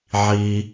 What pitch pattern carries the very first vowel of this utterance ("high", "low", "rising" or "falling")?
high